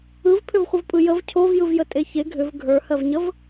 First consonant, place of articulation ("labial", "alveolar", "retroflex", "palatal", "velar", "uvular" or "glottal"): labial